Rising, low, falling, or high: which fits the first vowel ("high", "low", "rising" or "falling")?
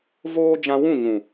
high